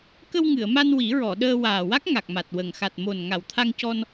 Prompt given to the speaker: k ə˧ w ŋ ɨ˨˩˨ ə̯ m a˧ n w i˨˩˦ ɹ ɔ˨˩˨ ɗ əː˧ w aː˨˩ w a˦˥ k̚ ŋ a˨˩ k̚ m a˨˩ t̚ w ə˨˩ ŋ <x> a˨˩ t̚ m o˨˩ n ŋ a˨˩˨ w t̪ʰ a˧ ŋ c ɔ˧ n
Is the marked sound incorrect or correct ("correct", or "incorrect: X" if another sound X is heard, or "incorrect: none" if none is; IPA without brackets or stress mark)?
correct